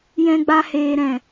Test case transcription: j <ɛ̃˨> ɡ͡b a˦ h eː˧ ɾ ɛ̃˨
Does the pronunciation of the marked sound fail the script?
yes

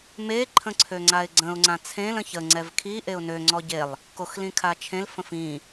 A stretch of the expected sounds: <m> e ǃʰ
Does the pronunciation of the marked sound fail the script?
no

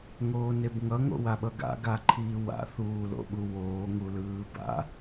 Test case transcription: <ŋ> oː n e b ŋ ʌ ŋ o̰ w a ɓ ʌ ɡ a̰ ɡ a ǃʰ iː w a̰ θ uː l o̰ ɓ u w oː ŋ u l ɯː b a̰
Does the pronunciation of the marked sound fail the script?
no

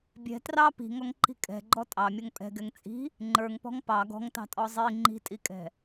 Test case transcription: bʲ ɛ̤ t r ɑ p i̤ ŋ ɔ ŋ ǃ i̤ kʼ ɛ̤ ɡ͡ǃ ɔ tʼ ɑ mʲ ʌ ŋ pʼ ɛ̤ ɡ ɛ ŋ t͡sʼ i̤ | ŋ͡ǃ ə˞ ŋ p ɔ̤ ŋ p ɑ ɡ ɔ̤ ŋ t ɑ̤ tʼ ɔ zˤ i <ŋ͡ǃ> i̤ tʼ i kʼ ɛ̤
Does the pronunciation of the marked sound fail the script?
no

